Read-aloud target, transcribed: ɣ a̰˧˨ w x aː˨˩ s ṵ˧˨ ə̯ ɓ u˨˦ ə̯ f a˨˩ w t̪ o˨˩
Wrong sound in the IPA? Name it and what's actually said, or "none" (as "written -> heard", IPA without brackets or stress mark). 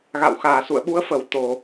a˨˩ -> ə˨˩